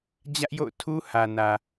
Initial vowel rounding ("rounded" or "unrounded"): unrounded